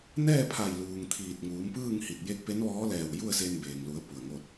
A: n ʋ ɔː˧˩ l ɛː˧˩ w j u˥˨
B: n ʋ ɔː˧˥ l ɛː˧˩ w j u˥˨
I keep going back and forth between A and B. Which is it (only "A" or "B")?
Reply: B